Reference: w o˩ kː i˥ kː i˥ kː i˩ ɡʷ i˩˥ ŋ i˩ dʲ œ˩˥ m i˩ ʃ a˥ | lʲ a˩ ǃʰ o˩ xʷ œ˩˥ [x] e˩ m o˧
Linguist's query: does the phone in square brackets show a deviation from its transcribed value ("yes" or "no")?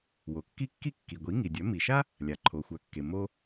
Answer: yes